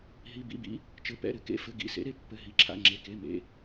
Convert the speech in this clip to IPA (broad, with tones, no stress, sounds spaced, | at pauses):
ɦ i˩˧˩ b ḭ˩˧˩ b ḭ˩˥ | t͡ʃ ɘ˩˧˩ p ɛ̰˩˧˩ ɾ ɘ˩˥ k ḛ˩˧˩ f ɘ˩˧˩ ɡ ḭ˩˧˩ s ḛ˩˥ ɾ e˩˥ pː ɘ˩˧˩ ɦ i˩˧˩ ǁʰ a̰˩˧˩ ŋ͡ǁ e˩˧˩ k e˩˧˩ m ḛ˩˧˩